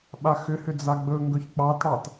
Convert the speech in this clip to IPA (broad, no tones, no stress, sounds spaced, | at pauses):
ɓ a x ʏ h ʏ d͡z a ɡ͡b ɵ ŋ ɡ ɵ ç k͡p ɑ t ɽ ɑ t